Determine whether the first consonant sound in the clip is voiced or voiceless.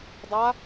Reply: voiced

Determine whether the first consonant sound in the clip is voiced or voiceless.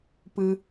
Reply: voiceless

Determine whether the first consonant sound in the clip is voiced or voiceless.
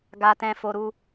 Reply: voiced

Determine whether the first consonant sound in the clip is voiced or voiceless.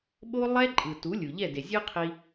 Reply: voiced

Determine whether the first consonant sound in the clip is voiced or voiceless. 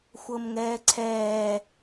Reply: voiceless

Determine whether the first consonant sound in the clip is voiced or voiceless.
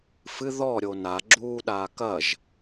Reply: voiceless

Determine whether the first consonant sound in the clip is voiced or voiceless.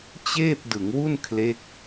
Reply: voiceless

